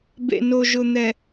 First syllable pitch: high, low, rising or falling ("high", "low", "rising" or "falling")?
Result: low